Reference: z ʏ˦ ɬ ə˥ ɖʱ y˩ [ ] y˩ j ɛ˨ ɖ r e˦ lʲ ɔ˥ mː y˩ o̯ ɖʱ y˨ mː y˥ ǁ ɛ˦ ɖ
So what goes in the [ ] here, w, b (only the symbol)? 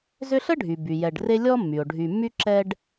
b